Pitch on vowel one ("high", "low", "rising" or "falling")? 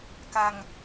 low